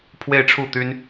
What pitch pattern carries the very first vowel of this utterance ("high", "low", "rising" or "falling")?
falling